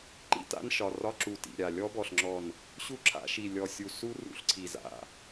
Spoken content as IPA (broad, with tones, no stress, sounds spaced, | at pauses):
ǃ ḭ˦˥ t a̰˦˥ n ʃ ɒ˩˧˩ r ɒ˦˥ ǁ u˧˩ t ḭ˩˧˩ ɾʲ a˧˩ lʲ ɔ˦˥ b ɔ˧˩ ɬ ŋ͡ǁ ɔ˧˩ n | ɕ u˦˥ ǁʰ a̰˧˩˧ ʃ i˧˩ lʲ ɔ˧˩ sʲ u˧˩ s u˦˥ r ṵ˧˩˧ ɬ ǀʰ i˧˩ z a̰˩˧˩